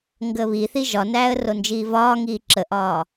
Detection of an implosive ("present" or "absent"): absent